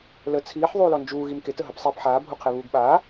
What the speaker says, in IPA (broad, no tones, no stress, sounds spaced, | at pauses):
l ə t͡sʰ iː ħ ðˤ uː l ɔ n d͡ʒ uː ɣ i m k e t ə ɦ ɐ p sˤ iː p ħ aː bʱ u qʰ e β uː ɡ ɓ aː